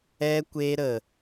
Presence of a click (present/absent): absent